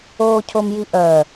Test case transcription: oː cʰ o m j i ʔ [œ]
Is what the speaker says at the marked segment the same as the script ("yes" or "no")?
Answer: yes